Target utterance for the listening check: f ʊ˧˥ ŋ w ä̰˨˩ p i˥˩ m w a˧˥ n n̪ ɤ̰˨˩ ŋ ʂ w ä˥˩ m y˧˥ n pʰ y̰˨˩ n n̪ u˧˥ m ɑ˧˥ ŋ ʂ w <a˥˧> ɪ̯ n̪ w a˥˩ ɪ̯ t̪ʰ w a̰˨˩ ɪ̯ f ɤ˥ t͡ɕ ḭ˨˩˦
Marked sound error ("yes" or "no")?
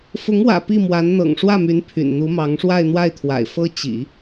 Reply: no